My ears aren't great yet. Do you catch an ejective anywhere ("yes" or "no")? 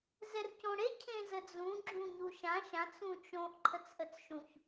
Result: no